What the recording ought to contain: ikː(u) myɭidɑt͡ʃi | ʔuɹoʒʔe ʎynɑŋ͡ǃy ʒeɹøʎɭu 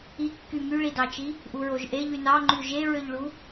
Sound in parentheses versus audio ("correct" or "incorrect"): incorrect